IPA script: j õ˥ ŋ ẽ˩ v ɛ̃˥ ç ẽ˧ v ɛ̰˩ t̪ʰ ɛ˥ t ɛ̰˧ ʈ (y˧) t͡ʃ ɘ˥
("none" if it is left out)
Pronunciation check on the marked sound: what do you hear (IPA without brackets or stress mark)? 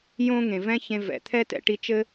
i˧